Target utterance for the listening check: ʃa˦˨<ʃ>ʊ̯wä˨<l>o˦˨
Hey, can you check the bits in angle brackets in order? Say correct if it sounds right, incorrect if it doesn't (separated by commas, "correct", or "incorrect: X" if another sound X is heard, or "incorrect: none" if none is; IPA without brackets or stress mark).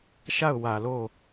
incorrect: none, correct